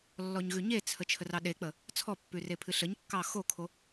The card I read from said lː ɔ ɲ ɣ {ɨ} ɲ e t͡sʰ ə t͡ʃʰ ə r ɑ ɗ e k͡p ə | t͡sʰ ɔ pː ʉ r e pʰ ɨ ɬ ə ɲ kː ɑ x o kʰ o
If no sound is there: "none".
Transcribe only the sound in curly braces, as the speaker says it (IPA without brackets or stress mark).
ʉ